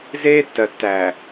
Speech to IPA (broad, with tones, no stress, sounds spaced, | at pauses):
z eː˦ tː ɜ˨ tː æː˨